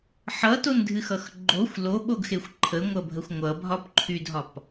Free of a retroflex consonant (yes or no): yes